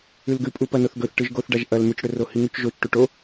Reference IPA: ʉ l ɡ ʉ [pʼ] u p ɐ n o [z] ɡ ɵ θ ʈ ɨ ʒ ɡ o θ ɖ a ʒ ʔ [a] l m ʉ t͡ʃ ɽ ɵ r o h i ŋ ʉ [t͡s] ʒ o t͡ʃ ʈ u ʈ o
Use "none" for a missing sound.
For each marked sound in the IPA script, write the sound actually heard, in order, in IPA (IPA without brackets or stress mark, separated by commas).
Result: pʼ, θ, ɐ, t͡ʃ